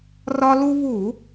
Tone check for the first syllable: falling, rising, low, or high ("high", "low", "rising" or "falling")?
high